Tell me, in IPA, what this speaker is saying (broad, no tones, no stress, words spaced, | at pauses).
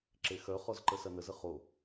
ǁexœ χɔzǃəsɐnəz əχo